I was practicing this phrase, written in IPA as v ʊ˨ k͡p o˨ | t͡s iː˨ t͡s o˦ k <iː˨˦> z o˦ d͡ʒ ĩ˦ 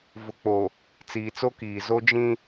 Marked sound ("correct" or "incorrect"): incorrect